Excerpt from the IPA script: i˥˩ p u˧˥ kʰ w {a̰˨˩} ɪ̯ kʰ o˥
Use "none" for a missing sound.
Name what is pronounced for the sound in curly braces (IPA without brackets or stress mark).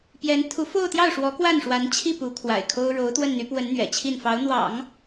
a̰˨˩